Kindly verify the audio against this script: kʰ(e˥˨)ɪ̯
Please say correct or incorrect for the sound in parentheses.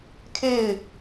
correct